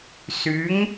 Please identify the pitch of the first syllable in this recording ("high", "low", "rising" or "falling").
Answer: rising